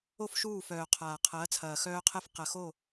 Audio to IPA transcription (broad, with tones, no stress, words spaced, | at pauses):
o˦˨fʃuː˦˨fœː˨qʰaː˨ qʰɐː˨˦t͡sʰɐː˨xœː˦qʰɛ˦f qɐ˨xo˦˨